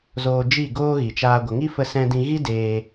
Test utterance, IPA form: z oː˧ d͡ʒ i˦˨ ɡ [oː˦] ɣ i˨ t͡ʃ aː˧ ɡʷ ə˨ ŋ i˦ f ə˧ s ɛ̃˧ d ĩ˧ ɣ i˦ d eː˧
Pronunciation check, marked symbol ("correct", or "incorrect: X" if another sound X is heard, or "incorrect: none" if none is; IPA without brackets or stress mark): correct